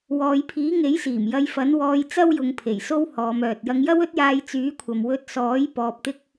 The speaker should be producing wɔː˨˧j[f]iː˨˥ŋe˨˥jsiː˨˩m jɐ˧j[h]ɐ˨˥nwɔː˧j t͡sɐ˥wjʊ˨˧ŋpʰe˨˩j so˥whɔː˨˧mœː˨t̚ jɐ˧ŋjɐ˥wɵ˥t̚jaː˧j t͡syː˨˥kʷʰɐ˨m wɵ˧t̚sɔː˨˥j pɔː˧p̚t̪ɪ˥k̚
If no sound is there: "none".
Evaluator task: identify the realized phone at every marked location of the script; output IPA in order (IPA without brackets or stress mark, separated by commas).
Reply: pʰ, f